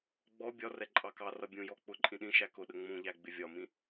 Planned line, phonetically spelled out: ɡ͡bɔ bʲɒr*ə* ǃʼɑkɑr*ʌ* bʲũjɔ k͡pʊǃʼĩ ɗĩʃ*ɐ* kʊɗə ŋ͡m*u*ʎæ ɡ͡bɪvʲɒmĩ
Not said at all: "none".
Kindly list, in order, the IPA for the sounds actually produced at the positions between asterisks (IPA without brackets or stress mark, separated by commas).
ɛ, ʌ, æ, ũ